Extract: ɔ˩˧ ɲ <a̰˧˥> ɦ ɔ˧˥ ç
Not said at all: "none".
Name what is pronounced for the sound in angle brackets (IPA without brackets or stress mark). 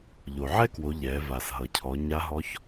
a˧˥